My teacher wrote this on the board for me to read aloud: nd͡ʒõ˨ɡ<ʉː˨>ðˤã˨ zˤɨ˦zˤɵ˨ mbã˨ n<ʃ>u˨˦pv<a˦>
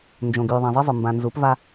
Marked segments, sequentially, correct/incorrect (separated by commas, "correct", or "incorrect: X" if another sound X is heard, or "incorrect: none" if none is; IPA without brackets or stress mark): correct, incorrect: z, correct